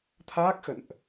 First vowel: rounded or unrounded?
unrounded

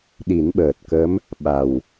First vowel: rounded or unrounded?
unrounded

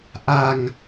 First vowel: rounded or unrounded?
unrounded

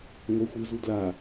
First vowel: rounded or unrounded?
unrounded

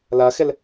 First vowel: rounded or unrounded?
unrounded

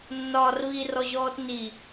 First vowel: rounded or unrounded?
rounded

